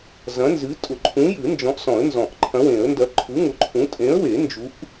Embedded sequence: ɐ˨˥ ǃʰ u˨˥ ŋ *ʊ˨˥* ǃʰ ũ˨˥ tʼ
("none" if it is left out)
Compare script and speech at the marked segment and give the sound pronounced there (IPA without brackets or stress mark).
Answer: ʊ˨˥